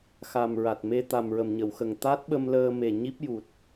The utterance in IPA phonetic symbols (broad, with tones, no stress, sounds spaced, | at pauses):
x a˨˩ m ɹ a˨˩ t̚ m e˧ t̪ a˨˩ m ɹ ə˨˩ m ɲ ə˨˩˨ w x ə˨˩ ŋ t̪ a˦˥ t̚ ɓ ə˧ m l əː˧ m e˨˩ ɲ i˦˥ p̚ j u˨˩ t̚